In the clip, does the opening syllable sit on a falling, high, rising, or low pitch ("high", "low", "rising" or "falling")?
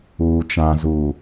low